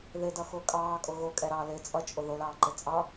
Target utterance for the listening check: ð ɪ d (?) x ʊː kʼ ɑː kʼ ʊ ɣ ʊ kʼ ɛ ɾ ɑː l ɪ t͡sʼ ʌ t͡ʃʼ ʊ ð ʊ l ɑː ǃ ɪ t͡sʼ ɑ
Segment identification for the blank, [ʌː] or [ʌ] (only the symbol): ʌ